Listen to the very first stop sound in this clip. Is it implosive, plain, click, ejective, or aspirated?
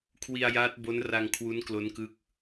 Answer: aspirated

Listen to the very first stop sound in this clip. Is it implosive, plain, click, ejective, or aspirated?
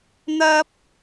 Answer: plain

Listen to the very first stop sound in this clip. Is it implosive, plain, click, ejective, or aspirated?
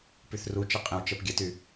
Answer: plain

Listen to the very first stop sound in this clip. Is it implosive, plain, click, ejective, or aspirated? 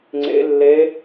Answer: click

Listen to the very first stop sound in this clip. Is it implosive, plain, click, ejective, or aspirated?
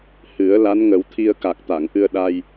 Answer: aspirated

